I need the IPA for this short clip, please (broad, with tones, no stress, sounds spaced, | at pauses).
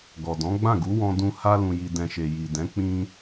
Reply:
ɡ ɔ˨ d ɔ̃˨˦ ɡ͡b ã˦˨ ɡ u˨˦ w ɔ̃˧ d ũ˧ h a˧ l ũ˨ j i˨ d ɛ̃˨ ʃ e˨ j i˨ d ɛ̃˨˦ k͡p ĩ˧